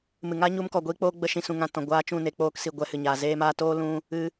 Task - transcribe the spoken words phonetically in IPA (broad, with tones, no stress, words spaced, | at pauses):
mɨ˨ŋa˦ɲu˧mkɔ˨ ɡʷiː˦k͡poː˦ ɡ͡bə˧ʃĩ˨ sũ˨ ŋã˨ tɔ̃˨ɡʷaː˦ t͡ʃũ˦˨ne˧ k͡poː˧ksi˨ ɡʷɛ˦hɨ˨ɲaː˨ zeː˦maː˦ toː˦lũ˧ | ɨ˦